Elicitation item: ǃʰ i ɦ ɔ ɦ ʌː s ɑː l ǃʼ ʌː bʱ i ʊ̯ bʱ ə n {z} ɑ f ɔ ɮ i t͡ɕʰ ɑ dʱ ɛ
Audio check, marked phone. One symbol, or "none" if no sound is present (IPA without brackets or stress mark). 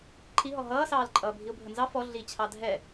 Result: z